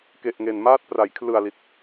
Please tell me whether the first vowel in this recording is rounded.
no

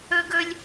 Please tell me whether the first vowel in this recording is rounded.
yes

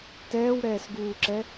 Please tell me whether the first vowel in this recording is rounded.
no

